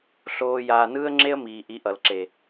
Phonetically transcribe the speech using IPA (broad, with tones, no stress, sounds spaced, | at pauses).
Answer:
ɬ oː˦ j aː˧ n ɯː˦ ə̯ ŋ͡ǁ e˦ ə̯ m iː˨ ʔ i˨˦ ʔ ʌ˨ l ǁ e˨